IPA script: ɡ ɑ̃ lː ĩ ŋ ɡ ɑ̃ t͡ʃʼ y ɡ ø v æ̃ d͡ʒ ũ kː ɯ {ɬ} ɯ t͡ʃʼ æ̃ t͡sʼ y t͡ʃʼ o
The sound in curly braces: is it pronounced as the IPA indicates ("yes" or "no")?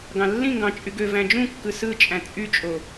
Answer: no